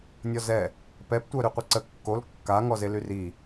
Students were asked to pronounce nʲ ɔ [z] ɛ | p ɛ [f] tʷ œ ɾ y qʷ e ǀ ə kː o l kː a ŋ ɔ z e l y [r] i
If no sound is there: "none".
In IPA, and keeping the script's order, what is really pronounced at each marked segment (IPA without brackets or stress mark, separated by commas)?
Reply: z, p, r